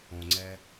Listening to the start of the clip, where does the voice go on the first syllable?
low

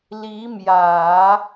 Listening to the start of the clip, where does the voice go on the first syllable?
rising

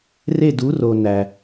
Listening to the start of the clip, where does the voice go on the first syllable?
falling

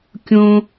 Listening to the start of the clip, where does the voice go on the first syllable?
high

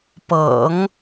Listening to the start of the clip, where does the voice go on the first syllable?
low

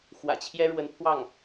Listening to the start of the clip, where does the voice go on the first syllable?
low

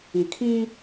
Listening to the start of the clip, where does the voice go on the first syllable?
low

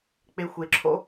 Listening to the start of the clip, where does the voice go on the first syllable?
low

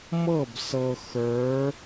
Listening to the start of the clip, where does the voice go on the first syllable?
falling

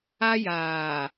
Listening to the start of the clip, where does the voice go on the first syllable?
high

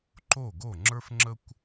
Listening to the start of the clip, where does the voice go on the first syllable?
falling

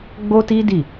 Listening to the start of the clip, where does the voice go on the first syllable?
high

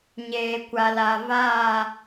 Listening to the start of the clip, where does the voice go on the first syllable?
low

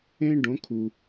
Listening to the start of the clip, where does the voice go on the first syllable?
high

